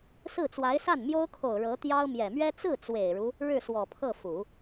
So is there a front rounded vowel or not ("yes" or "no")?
no